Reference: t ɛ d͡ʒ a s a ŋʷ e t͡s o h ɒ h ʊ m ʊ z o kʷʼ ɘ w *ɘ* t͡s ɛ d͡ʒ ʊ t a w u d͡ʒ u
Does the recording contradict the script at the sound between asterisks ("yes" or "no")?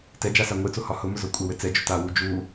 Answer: no